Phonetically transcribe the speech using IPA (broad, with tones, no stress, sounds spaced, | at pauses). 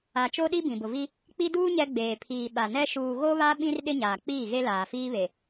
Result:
a˨ t͡ʃ o˦ ɗ i˦ b ĩ˨ b ʊ˨ v i˦ | k͡p i˦ d uː˦ ɲ ɛ˦ ɡ͡b eː˨ pʰ iː˨ ɓ a˨ n ɛ˦ ʃ uː˨ ɣ o˦ β a˦ ɓ ĩ˦ r ɗ ɪ˦ ɲ aː˨ k͡p iː˦˨ ɣ e˦ l aː˨ f iː˦ β e˨